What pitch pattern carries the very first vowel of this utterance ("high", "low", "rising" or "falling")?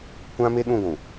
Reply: high